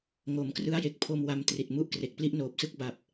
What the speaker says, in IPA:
ŋ o˩˦ m k r ɯ˦˥ a̯ j e˨˩ k̚ pʰ o˧ m w a˧ m t r i˨˩ t̚ m u˥˩ ʔ k r e˨˩ k̚ p l i˥˩ ʔ n oː˨˩ p̚ s ɯ˦˥ k̚ b a˨˩ p̚

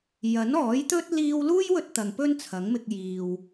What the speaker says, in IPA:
j ɐ˨˥ n ɔː˨˥ j t̪ ɵ˥ t̚ l iː˧ w l uː˥ j w ɵ˧ t̚ t̪ ɐ˨ ŋ p ɵ˥ n t͡sʰ ɐ˨˥ ŋ m ɪ˧ k̚ j iː˨ w

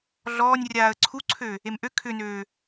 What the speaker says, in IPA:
ɮ ɔː nʲ rʲ aː ə̯ ǀʰ u ǀʰ ø | e m ʔ ø kʰ ʏ n øː

